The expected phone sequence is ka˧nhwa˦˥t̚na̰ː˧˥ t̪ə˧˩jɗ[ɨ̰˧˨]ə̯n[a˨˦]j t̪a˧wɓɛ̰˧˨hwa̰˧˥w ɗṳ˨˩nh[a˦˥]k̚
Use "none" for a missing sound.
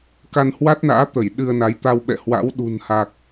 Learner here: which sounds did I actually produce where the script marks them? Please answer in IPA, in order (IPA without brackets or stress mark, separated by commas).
ɨ˧, a˨˦, a˨˩